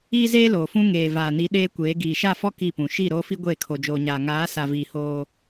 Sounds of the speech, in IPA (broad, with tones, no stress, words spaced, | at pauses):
iː˦zeː˦loː˨fũ˦ ŋeː˨vaː˨ni˨˦ ɗeː˦kʷeː˨˦ɡiː˨ ʃa˦˨fɔ˦ ki˦˨pũ˨ ʃi˦˨ ɾoː˦fi˦ ɡʷeː˦˨kʰo˨d͡ʒoː˨ɲaː˨ ŋaː˨˦sa˨viː˨ hoː˦